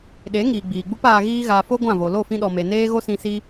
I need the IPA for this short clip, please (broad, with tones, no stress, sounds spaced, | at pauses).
ɗ e˨˦ ŋ iː˨ ɡ͡b iː˨ ɡ͡b u˦ p aː˧ ɣ iː˧ ɣ a˨ f o˦ ɡʷ ã˦˨ v o˨ l o˦˨ f ĩ˧ ɗ ɔ˨ m e˨ n eː˧ ɣ o˦ s ĩ˧ s i˦